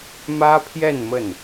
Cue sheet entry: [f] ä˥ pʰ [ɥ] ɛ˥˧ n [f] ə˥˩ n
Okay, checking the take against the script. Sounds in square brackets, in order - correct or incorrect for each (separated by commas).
incorrect, incorrect, incorrect